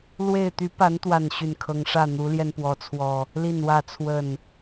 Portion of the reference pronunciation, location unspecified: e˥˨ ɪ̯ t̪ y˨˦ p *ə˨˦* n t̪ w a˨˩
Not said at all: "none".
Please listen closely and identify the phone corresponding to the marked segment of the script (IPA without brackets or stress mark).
a˨˦